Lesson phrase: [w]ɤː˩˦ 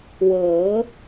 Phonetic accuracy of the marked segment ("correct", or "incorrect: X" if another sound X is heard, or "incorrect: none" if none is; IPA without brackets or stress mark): correct